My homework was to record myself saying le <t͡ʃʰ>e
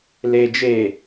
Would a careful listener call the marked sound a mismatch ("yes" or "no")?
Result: yes